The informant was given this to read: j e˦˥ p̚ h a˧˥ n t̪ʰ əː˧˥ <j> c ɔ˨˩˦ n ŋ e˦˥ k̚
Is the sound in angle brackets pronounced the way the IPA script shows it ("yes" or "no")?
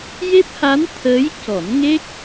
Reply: yes